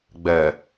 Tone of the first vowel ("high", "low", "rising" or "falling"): low